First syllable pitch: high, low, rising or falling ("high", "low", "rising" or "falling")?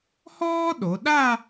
high